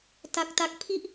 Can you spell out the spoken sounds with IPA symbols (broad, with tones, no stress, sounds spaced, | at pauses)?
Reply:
t a˦˥ k̚ t a˦˥ k̚ pʰ i˥˩ ʔ